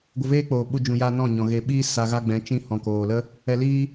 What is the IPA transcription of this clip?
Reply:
ɡʷ ə˧ v eː˦ k͡p oː˨ ɓ u˧ d͡ʒ ũ˨ j aː˧ n ɔ̃˦˨ ɲ ɔ̃˨ ɣ e˨ ɓ iː˦ s a˧ ɣ a˦ ɡ͡b ɛ̃˨˦ t͡ʃ ĩ˧ h ɔ̃˨ k oː˨ l ə˦ | ɛ˧ l iː˦

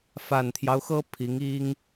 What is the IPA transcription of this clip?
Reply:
f a˨˩ n t̪ʰ j ɑ˦ ʊ̯ x ɤ˥ pʰ i˧˥ ŋ i˥ ŋ

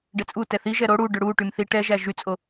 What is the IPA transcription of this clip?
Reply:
ɖ ɛ t͡sʼ u t ɛ θ i ʒ ɛ ɾ o ɽ u ɖ ɵ ɽ u ʈ y m θ i ʈ ɛ ʒ æ ʒ y t͡sʼ o

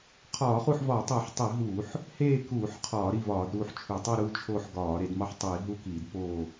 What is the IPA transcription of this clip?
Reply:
qʰ ɒː˧˩˧ χ u˦˨ ħ v ɒː˧˩˧ tˤ eː˧˩˧ ħ tˤ i˧˩˧ ɦ uː˧˩˧ ħ | h eː˦˨ k uː˧˩˧ ħ qʰ ɒː˧˩˧ ɾ i˦˨ v ɒː˧˩˧ d ɾ uː˦˨ ħ t͡ʃʰ u˧˩˧ tˤ æ˦˨ ɾ uː˦˨ t͡ʃʰ oː˦˨ ħ ɡ ɒː˧˩˧ ɾ e˧˩˧ d m ɒ˦˨ ħ tˤ iː˧˩˧ ɦ u˦˨ k iː˧˩˧ d p oː˦˨

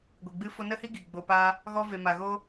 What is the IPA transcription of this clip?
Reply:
ɡʷ i˨ ɡ͡b ɨ˦ f o˦ n ə˦ h i˦ ɡ i˨ ɡ͡b o˧ p a˦ | ɣ ɔ˦ v e˧ m a˧ ɣ o˦

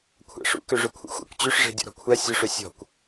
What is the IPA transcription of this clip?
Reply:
kʷʰ æ̰ ʂ ṵ k ø ʐ ø kʷʰ ḛ xʷ æ̰ kʷ t͡ɕ ø ʂ ʐ e̤ dʲ ɔ̰ ɾ ɔ̤ kʷʰ æ sʲ ʊ ʂ ø sʲ ɔ̤ kʷ

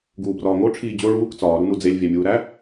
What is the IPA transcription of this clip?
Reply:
ɡ uː b r ɒː ŋ o ʈ͡ʂʰ iː d͡ʑ o ɭ uː k t͡s ɒː ɾ u n u d͡z e lʲ vʲ æ mʲ uː ɾ æ

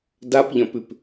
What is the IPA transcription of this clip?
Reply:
d a p ʎ ɐ̃ p ʉ p

